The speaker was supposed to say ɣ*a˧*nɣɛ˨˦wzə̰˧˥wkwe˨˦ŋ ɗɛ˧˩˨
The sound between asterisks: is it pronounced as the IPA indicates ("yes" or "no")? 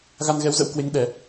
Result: yes